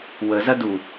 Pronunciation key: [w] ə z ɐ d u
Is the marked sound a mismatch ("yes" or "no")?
no